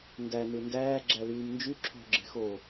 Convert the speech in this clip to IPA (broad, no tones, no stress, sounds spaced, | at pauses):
n d æ n ɯ n d æː ɡ͡ǁ æ l yː m n d͡ʒ y ǁʰ o̤ ɡ͡ǁ e̤ x o